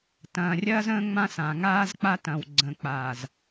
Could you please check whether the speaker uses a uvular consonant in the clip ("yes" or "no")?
no